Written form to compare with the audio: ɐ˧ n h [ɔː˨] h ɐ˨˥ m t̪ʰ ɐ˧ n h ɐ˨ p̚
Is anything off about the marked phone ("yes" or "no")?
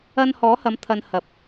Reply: yes